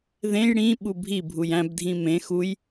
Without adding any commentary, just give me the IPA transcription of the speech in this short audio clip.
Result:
ð ẽ j ɽ ĩ ɓ u bʱ i bʱ u j æ̃ b dʱ ĩ m ẽ x u j

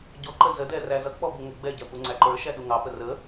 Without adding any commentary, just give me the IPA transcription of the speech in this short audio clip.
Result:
ɟ ɔ ǃ ə z ə d ɛ r æ z ʌ k͡p ɔ b u ŋ ə ɡ͡b ɛ ɟ æ p u ŋ͡ǀ æ ǃ ə˞ ʃ æ ɗ u ŋ ɑ p ə r ə

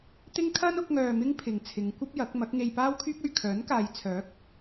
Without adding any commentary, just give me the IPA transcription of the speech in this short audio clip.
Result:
t̪ ɪ˥ ŋ kʰ ɐ˥ n ʊ˨˥ k̚ ŋ œː˧ m ɪ˥ ŋ pʰ ɪ˨ ŋ t͡sʰ ɪ˨˧ ŋ kʷ ɐ˥ p̚ j ɐ˨˥ k̚ m ɐ˨˥ k̚ ŋ e˧ j p aː˥ w kʰ yː˥ k̚ ɵ˨ ɥ kʰ œː˨˥ n k aː˨˧ j t͡sʰ œː˨˥ k̚

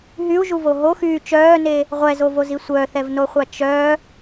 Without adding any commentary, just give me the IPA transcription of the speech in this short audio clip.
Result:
ɦ y u̯ ʒ u v o ɦ o x yː t͡ʃ œː n e | ʁʷ ɛ z o v o z i sʷ œ θ ɛ v n o χʷ a t͡ʃ œ

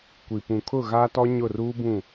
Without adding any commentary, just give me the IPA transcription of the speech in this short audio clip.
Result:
kʷ i˨ p ũ˨ kʰ ʊ˦˨ ɣ aː˦ t ɔ˦ ɲ ʊ˦˨ r uː˦ b ũ˦˨

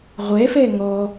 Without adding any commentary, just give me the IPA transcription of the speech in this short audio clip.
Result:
ʁʷ ɛ f ɛ ŋ ɔ

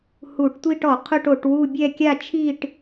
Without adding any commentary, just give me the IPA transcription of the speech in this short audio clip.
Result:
h u˧˩˧ ʈ tʷ i˥˧ ʈ ɔ˧˩˧ qʰ ʊ˥˧ ʈ o˧˩˧ ʈ w u˥˧ bʲ ɛ˥˧ kʲ a˥˧ t͡ʃʰ i˥˧ ʈ

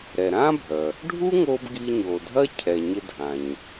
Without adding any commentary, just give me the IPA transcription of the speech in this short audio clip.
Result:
ɾ ɛ˩ ɾ ã˥ bʱ œ˩ | ɖʱ u˥ ŋ o˧ b ɡ i˧ ɲ o˩ dʱ ɐ˥ cʰ ɛ˩ ɲ ɪ˧ dʱ ã˩ ɲ

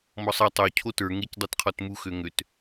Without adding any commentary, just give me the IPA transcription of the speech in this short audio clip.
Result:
m ɔ sˤ ɛ tˤ o cʰ o t ə˞ ŋ e c dˤ i t qʰ ɔ t m u x ø ŋ ø t

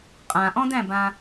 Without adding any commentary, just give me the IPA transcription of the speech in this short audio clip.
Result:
qʼ ã ʔ ɔ̃ d æ̃ b ã

